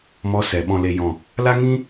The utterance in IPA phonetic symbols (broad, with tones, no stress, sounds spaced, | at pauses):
m ɔ˧ s ɛ˨ ɓ ɔ̃˨ l e˨ j ɔ̃˨ | l a˦ ŋ ĩ˦